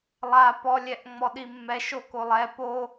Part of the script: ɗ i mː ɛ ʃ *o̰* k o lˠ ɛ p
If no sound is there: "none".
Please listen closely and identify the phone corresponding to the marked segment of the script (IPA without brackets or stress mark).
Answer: o